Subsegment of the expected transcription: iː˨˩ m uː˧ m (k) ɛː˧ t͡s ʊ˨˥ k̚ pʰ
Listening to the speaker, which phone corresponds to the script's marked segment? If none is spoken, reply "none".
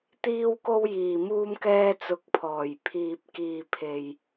k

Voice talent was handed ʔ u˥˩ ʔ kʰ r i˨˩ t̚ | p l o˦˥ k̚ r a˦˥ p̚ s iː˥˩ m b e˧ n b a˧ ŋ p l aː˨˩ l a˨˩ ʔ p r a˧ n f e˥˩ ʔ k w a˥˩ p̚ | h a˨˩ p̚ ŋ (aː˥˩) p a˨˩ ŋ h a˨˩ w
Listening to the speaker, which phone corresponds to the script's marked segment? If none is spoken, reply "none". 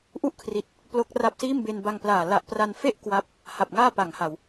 aː˥˩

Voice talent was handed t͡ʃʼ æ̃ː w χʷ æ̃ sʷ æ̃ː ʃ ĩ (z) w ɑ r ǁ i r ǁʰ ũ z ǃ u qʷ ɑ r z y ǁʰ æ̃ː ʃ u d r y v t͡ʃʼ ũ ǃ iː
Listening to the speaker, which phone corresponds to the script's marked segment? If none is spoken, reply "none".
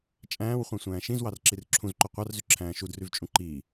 z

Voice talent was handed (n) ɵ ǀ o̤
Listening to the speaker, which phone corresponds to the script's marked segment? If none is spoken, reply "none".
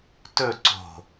t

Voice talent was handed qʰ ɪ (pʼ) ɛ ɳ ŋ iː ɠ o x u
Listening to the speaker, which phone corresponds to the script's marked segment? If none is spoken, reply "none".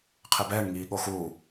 b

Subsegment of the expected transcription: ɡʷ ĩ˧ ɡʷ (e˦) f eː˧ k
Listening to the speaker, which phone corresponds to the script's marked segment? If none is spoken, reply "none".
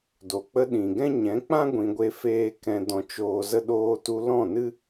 e˦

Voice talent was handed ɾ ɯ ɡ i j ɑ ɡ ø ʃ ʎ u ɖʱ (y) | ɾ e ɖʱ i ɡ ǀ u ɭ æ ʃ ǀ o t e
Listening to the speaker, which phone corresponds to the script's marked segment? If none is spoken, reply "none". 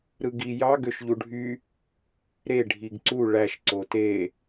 y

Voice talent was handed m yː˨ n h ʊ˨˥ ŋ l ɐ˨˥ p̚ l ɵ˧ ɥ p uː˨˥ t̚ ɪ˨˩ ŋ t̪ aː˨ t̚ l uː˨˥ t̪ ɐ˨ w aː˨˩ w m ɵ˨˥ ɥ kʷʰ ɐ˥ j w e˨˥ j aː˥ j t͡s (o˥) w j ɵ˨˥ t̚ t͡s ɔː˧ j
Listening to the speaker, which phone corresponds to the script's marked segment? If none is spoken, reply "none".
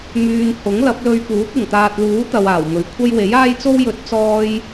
o˥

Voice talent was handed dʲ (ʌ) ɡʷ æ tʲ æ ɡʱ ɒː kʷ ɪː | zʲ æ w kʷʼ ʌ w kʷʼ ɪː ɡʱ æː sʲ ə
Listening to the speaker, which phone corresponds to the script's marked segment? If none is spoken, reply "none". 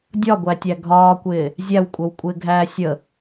ɒ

